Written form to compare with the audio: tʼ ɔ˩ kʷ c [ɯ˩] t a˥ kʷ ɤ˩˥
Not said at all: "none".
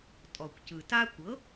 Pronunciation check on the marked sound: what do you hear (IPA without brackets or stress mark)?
ɯ˩